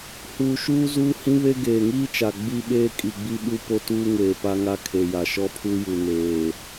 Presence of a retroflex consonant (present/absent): absent